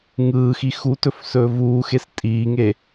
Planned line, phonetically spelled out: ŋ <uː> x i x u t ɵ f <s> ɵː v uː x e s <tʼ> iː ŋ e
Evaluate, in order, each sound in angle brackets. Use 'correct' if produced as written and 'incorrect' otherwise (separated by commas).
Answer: incorrect, correct, correct